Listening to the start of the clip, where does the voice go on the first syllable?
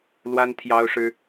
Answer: high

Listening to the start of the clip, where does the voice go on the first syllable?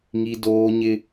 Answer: high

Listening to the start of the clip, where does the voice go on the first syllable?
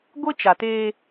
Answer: high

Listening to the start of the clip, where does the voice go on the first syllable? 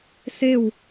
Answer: falling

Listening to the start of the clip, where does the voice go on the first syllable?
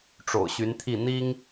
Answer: low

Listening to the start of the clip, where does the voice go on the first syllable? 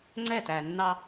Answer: falling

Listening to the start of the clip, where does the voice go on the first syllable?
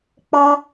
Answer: high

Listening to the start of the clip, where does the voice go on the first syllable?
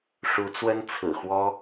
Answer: rising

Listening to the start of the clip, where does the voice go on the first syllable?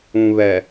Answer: low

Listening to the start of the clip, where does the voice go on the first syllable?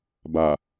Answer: low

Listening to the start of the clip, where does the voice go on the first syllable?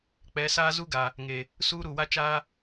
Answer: rising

